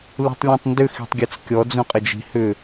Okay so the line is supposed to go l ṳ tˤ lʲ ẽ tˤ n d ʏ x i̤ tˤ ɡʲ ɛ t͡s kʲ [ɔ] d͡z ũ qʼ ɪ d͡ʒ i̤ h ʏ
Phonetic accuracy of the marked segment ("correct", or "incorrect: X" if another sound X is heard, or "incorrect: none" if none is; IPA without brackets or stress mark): correct